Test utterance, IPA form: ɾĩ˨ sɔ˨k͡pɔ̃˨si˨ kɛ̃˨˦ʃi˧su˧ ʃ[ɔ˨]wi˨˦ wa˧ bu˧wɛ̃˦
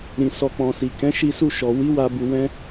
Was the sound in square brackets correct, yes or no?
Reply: yes